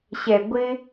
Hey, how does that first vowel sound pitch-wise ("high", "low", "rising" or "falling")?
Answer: low